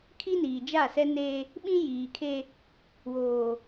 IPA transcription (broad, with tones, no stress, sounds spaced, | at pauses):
kʰ i˦ n iː˨ d͡ʒ a˦˨ s ɛ˦ n eː˦ | ɓ ĩ˦ j iː˨ kʰ e˦ | w oː˨